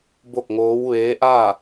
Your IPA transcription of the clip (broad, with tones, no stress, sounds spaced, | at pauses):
b o˥˨ k̚ ŋ oː˧˥ w ʋ eː˧˥ ʔ aː˥˨